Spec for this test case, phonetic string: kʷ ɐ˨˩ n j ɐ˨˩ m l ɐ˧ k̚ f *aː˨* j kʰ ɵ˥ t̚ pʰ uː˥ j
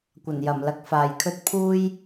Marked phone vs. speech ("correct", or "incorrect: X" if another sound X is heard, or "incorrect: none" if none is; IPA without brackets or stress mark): correct